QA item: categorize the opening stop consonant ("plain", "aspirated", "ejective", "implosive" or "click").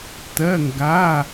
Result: plain